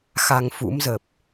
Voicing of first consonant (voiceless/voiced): voiceless